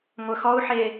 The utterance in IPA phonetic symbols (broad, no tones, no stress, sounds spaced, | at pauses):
ŋʷ œ x ɔ u̯ ħ e